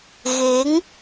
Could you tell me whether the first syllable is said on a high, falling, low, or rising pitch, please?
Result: rising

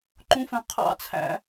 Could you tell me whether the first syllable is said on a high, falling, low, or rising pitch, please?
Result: high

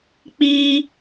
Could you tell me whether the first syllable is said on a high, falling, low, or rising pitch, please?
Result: high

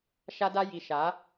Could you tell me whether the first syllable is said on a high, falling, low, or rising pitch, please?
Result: high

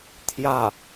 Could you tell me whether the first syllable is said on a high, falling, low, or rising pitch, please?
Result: falling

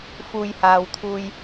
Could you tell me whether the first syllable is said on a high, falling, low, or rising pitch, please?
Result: low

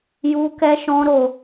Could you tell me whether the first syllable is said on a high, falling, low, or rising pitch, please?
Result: high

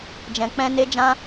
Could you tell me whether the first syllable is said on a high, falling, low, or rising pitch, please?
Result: low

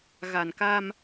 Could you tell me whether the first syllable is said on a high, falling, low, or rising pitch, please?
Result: low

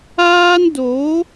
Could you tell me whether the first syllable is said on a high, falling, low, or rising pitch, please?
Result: high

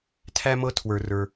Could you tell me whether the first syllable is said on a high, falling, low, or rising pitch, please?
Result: high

